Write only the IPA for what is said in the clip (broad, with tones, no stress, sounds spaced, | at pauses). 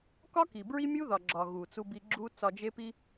k ɒ˦ k i˨ b ɹ i˦ mʲ u˦ ð ɒ˨ ɡ͡ǁ ɒ˨ ɣ u˨ t͡s u˧ b i˧ ɡ͡ǁ u˦ t͡s ɒ˧ d͡ʒ e˦ p i˦